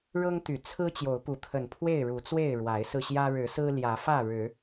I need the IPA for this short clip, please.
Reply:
ɻ ɤ˦ ŋ t̪ y˨˩ t͡sʰ ɹ̩˦ t͡ɕ j o˨˦ ʊ̯ p u˨˦ t̪ʰ ə˨˩ n pʰ w e˥˨ ɪ̯ ɻ u˨˦ t͡s w e˥˨ ɪ̯ ɻ w a˨˦ ɪ̯ s ɹ̩˧ ɕ j ä˦ ɻ ɻ̩˨˦ s ɹ̩˦ l j ä˨˦ f ä˥˨ ɻ ɻ̩˨˦

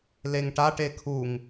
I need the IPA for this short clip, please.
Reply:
l e ŋ ʈ a ʈ e kʰ u ŋ

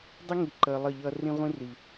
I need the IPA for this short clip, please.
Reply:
dˤ ɪ˦ ŋ i˨ ǃ əː˨ lˠ ʌ˦˨ ʎ ʌː˦ r ĩ˦ ʁʷ ĩ˦ r i˨

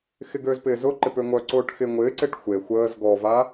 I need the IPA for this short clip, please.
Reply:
x ɪ ɡ øː z p ɪː z ʊ ǃ ɪ p ø ŋʷ œ ǀ ʊː ʈ x ɪ ŋʷ ɪː ǀ e ʈ xʷ e xʷ əː z ɡ ɔ v a

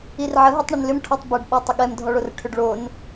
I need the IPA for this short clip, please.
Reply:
i r ʕ ə ɦ i tˤ ɳ ə n l ʏ m ʈʰ ɔ tˤ b ə ɖ ɓ ɔ tˤ ə ɠ ɛ m dʱ ɔ ɭ o r ʈʰ ʏ ɖ ɭ o n

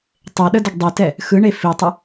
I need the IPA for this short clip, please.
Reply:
tˤ e ɗ ə d ə ɡ dˤ i t ɛ | x ɯ ɳ e f i tˤ ə

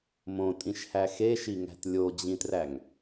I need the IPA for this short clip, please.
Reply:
m õ tʼ ĩ ʃ h æ x e ʃ i ŋ æ̤ t lʲ o d͡ʑ ĩ t r æ ŋ

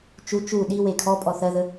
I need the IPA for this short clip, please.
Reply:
t͡ʃ u t͡ʃ u ɗ i w e kʰ ɔ pʼ ɔ θ ɜ ð ə

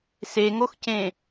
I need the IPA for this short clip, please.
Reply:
s e ŋ o x c ẽ

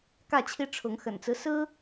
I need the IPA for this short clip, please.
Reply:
k ä˥˨ t͡ɕʰ i˦ ʈ͡ʂʰ ʊ˨˦ ŋ x ə̰˨˩ n t͡s ɹ̩˦ s ɹ̩˦

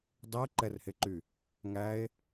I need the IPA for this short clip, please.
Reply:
dˤ əː ǃ ɛ r h e ǃ y | ŋ æ e̯

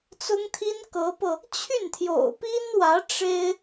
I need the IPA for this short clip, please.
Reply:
t͡s ʊ˥ ŋ t̪ʰ i˥ n k ɤ˧˥ p ɤ˧ | t͡ɕʰ y˥˩ n t̪ʰ j o̰˨˩ ʊ̯ p i˥ n w ä˧˥ ʈ͡ʂ e˥ ɪ̯

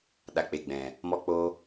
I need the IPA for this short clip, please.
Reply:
ɗ a˨ k͡p e˨ ɡ͡b ɛ̃˨ | m ɔ˧ k͡p oː˧

